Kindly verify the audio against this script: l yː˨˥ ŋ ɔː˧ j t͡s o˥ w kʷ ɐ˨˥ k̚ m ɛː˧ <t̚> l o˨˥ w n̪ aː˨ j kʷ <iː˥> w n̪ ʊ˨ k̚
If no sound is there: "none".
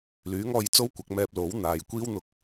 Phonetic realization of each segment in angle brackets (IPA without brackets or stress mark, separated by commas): p̚, iː˥